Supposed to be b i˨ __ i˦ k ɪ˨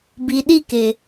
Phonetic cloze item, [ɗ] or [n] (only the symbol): ɗ